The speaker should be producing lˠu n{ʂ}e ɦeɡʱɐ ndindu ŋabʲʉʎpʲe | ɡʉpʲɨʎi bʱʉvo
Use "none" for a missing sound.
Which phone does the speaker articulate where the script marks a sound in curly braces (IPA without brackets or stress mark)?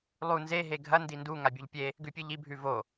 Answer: z